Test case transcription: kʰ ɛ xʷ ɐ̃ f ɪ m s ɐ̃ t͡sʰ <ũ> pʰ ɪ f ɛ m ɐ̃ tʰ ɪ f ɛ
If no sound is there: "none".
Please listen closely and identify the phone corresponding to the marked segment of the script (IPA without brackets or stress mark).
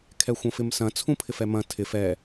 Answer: ũ